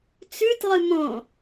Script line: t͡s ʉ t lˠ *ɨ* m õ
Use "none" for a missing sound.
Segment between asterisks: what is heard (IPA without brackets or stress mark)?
ɨ